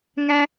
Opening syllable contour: low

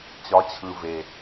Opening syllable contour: rising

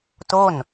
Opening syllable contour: falling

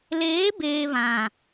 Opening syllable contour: rising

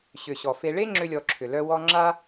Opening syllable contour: low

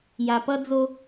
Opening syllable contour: low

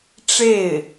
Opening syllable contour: falling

